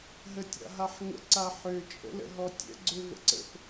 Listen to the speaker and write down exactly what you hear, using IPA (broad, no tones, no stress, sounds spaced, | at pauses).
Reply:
ɦ ə tʲ a̰ ɦ a ħ ŋ ə̰ ǀ a ħ ø t͡ʃʼ ə̰ l ə̰ ɦ ɔ tʲ ə̰ ɡ͡ǀ ø v ə̰ ǀ ə̰ p